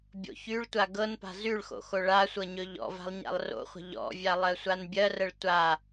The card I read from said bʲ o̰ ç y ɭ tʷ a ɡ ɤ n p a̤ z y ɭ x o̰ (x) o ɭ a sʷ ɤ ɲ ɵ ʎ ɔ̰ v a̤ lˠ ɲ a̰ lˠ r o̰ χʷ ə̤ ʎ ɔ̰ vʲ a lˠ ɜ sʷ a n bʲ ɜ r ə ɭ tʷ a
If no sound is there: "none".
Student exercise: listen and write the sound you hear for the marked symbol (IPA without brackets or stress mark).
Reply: x